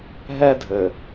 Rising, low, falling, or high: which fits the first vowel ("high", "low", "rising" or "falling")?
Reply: high